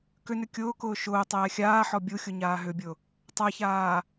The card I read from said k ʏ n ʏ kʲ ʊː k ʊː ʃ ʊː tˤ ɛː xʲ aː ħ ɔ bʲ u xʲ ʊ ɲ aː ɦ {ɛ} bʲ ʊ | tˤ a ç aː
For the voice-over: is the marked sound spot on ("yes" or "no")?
no